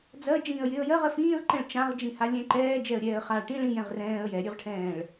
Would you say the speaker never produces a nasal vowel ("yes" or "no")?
no